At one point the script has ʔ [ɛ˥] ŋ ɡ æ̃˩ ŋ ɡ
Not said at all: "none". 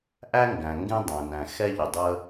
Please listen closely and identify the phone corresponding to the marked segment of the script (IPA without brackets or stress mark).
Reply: æ˥